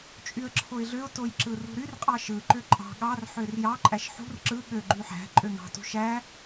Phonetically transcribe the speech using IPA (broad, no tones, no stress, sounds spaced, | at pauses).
t͡ʃʼ y ə̯ ǁʰ o ɪ̯ ɮ ø ʊ̯ t o j ǁ ɯ r ṳ ɾ y r qʼ ɑ ʃ ɯ ǃ ø ǃʼ ɑ̤ ɠ ɑ r ħ ø r j ɑ ǃʼ æ ʃ ħ ṳ r ǁ ɯ ɠ ø ɡ͡ǃ y ħ æ̤ ǃʼ ø ŋ ɑ̤ t ṳ ʃ æ